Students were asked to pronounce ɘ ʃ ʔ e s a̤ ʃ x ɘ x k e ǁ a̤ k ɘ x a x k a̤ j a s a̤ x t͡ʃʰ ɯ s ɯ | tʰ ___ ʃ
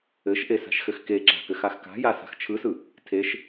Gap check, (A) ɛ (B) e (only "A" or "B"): B